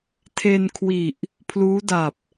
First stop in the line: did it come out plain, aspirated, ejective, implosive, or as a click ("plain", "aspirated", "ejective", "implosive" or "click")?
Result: aspirated